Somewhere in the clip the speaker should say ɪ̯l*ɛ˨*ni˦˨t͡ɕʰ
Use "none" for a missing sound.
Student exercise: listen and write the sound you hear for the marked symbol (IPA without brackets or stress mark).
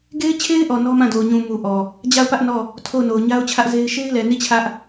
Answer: ɛ˨